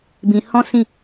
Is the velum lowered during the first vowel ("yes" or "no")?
yes